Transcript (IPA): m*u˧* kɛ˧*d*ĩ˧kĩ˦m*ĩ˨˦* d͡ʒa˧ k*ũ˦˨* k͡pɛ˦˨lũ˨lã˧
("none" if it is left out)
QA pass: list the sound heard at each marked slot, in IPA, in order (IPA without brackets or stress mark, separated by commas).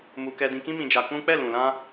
u˧, d, ĩ˧, ũ˦